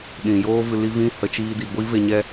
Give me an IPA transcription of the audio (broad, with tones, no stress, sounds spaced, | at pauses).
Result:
ɗ ĩ˨ j oː˦ v ɨ˧ l i˦ v ĩ˦ h ə˨˦ t͡ʃ iː˧ d i˨ ɡʷ i˦ v e˧ ɲ ɛ˦